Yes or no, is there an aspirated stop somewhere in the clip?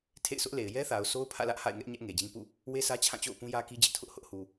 yes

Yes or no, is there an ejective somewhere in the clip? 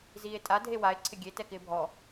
yes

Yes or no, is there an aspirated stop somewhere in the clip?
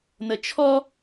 yes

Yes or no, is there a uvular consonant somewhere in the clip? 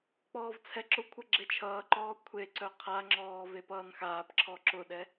yes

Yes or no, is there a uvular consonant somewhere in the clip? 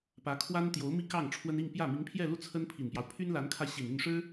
no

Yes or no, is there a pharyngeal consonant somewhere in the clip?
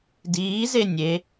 no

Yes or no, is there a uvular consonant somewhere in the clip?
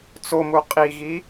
yes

